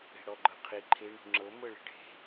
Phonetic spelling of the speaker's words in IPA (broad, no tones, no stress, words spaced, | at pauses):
e̤ɽɔɡ͡ǃɤqʰi ǃʰe ɳṳŋ͡ǁɤ mɤɭe̤ɖʱe̤